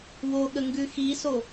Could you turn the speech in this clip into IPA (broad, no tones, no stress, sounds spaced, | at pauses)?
w o ɠ ə ŋ ɡ ʉ x i s o